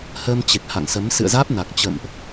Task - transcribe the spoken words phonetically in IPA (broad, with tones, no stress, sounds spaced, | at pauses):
h əː˧ m t͡ɕ e˨˩ k̚ h a̰˧˨ ŋ s ə˨˦ m s ɨ̰˧˨ ə̯ z aː˦˥ p̚ n a˨˩ k̚ t͡ɕ ə̰˧˨ m ʔ